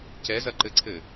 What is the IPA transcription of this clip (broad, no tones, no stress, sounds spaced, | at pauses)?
c ɛ z ɐ ǃ ɘ ǀʰ ɘ